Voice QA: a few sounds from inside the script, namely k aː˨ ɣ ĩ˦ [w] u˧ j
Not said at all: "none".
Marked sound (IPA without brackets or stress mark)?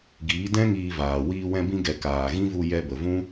v